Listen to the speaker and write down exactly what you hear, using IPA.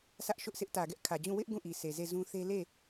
sʰ ä˦ ʔ ʃ ʊ˦ ʔ s ɪ˦ ʔ t ä˨ ɡ ɛ˦ ʔ kʰ ä˨ d͡ʑ ũ˦˨ w ɪ˦ ʔ ɡ ũ˦˨ ʔ i˨ s e˨ z e˦˨ z ũ˦ θ e˦ l e˦˨

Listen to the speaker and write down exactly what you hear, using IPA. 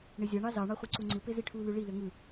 ɳ e zʲ ɑ ɳ ɑ z ɑ ɳ ɑ χʷ ɯ ǀ u ŋ͡ǀ ɯ p e z i ʈʰ u l y ɭ i l ø ŋ ɯ

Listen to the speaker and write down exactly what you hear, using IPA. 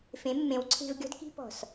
f ẽ˨˦ mː ẽ˨˦ w ǀʰ e̤˧ v ɡʲ ɔ̤˧ d k i̤˧ p ɔ̤˨ s

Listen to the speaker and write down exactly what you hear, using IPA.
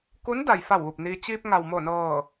k u˧˥ n d a˩ j f a˧˩ w ʋ u˧˩ p̚ n iː˧ t͡ɕ iː˧ p̚ ŋ a˩ w m o˧˩ n ɤː˧˩

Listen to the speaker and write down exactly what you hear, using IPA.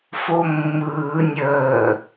f o mː ɯː nʲ əː

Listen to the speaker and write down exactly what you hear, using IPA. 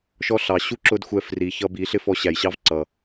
ʃ ɔ˦ ɬ ɑ˨ ɕ u˦ ǁ ʊ˦ d xʷ ɛ˧ f r i˨ ç ʌ˧ b i˨˦ ɬ ɪ˦ f ɔ˧ ɕ æ˨ j ɕ ɑ˦ v ǀ ʌ˨

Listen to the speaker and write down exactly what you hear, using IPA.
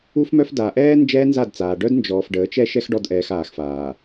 u˦ f m œ˦ f d a˨ ʔ ɛː˦ n d͡ʒ ɛː˦ n z a˦˨ d t͡s aː˨ ɖ œ˦ d n d͡ʒ ɔː˨ f ɖ əː˨˦ t͡ʃ ɛ˦ ʃ ɛ˦ x ɖ ɔ˦˨ d ʔ ɛː˨ x aː˨ x f aː˨

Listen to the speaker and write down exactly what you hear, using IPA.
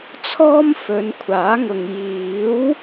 t͡sʰ ɔː˥ m f ɵ˨˧ n kʷʰ aː˨˥ ŋ ʊ˨ ŋ j iː˨˥ w

